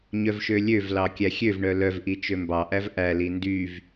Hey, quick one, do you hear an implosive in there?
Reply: no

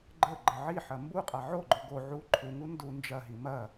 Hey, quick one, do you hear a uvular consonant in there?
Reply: yes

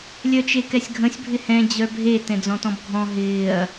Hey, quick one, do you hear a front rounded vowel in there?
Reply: yes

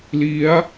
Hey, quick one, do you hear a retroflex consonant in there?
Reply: no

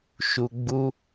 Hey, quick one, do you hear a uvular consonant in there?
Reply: no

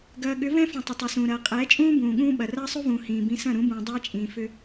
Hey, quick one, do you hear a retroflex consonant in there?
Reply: no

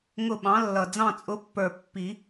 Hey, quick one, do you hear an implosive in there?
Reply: yes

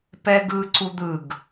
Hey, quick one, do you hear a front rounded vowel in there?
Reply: no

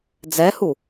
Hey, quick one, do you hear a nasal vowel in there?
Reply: no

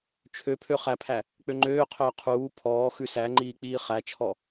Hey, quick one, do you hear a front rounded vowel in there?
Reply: yes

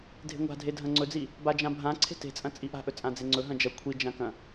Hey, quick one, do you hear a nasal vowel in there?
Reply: yes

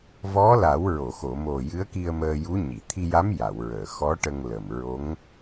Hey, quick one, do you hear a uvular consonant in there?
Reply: no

